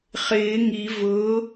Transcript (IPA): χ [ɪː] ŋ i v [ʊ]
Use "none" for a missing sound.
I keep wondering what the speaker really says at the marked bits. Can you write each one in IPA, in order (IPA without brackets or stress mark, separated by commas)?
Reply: ɪː, ʊ